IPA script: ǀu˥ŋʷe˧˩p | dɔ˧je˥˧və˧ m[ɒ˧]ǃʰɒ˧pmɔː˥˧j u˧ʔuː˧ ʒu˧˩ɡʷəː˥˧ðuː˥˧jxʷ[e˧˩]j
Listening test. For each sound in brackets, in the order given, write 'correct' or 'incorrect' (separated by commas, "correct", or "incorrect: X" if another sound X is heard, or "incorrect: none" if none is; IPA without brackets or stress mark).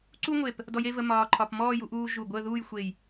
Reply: incorrect: ɒː˧, correct